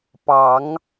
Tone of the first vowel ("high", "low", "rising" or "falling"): rising